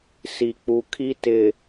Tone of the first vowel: low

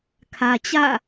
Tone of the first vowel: low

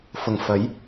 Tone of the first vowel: low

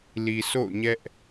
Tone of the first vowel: low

